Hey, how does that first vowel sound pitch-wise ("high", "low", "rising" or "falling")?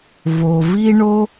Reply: low